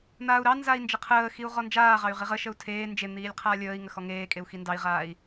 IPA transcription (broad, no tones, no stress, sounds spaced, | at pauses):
n̪ aː u̯ ɾ ɑ n z a i̯ n d͡ʒ ə qʰ əː x i u̯ ʁ ɔ n d͡ʒ aː ʁ ɑ y̯ ʁ i ʁ ə ʃ ə u̯ tʰ eː n d͡ʒ e n̪ iː lʲ qʰ aː lʲ əː i̯ ŋ ə x ɔ ŋ eː kʼ e u̯ x i n d ɑ i̯ ʁ aː i̯